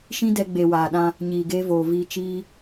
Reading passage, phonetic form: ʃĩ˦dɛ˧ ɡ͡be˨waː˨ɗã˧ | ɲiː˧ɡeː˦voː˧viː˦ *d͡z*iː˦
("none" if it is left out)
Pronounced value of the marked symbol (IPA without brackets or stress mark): t͡ʃ